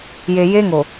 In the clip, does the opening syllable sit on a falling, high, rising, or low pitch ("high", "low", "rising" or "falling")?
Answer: low